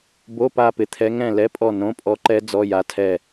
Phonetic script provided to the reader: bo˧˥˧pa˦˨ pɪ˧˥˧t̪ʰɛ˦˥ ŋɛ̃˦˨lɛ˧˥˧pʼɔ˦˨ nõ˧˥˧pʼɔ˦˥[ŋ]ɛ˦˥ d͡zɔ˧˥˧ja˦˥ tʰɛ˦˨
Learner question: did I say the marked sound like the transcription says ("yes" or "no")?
no